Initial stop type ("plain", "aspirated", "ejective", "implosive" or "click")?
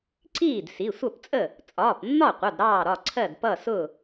click